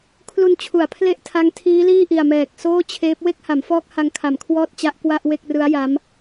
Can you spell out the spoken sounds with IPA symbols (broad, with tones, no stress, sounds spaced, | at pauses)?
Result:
kʰ l u˧ n t͡ɕʰ u˩˦ a̯ pʰ l e˦˥ ʔ tʰ a˦˥ ŋ tʰ iː˦˥ l iː˥˩ ʔ i˨˩ a̯ m ɛː˨˩ k̚ s oː˥˩ t͡ɕʰ eː˦˥ p̚ w e˥˩ k̚ h a˩˦ m f ɔː˦˥ k̚ h a˦˥ ŋ kʰ a˨˩ m kʰ w ɔː˥˩ t̚ t͡ɕ a˦˥ ʔ k w a˥˩ ʔ w e˥˩ k̚ r ɯ˦˥ a̯ j a˦˥ m